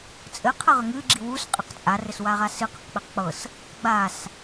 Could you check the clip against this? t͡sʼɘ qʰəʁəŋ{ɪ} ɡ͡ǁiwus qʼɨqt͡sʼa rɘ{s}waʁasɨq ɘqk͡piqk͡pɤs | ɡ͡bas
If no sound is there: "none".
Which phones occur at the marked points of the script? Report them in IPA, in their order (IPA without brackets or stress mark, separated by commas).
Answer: ɨ, s